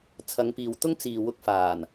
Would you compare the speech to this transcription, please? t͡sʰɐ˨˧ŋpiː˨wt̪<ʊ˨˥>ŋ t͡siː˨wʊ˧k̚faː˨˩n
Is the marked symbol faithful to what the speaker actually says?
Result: no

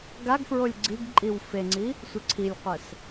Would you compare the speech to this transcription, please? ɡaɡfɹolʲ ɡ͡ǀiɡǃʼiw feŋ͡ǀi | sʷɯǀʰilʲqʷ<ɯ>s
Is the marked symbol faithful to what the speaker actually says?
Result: no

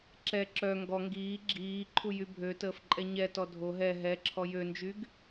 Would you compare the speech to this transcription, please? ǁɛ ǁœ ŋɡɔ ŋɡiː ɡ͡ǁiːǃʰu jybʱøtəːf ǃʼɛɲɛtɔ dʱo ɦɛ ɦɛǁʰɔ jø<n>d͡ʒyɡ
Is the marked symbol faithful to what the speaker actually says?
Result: yes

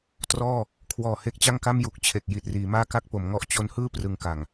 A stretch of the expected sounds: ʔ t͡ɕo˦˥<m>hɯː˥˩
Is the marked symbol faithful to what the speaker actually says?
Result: no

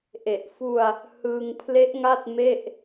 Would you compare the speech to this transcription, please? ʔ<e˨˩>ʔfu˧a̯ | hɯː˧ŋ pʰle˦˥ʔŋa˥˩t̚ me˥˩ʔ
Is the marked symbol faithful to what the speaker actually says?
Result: yes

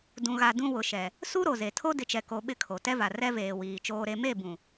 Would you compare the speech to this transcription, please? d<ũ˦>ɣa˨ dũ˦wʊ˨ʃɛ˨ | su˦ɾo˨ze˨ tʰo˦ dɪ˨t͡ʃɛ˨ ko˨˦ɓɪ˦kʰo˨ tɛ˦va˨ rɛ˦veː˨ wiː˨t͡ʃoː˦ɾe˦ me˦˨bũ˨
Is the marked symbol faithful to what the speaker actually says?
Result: no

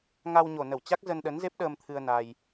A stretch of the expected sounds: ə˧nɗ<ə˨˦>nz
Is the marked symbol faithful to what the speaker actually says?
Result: yes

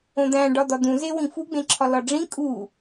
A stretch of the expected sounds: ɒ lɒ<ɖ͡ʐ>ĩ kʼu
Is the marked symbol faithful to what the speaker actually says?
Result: yes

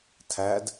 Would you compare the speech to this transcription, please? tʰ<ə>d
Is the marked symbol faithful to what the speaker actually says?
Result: no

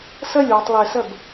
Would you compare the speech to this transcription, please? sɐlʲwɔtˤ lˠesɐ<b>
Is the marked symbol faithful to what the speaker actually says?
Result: yes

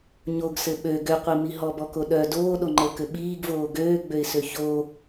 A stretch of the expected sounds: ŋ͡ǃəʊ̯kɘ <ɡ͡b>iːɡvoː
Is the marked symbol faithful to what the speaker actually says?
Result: no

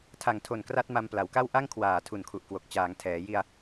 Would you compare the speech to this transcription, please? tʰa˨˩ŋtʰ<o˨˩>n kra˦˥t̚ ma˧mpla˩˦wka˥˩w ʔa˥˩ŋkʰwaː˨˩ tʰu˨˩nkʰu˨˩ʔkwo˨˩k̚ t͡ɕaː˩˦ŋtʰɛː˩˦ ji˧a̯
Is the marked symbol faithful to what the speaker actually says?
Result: yes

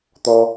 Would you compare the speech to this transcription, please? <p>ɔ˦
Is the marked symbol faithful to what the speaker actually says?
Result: no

